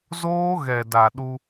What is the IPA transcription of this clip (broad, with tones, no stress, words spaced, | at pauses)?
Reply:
zoː˦ɣɛ˨da˨ɗu˧